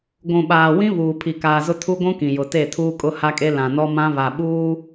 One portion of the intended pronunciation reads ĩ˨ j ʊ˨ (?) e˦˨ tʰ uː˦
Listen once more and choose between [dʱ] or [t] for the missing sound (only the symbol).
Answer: t